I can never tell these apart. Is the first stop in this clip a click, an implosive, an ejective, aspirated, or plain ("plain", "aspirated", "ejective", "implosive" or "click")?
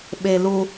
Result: implosive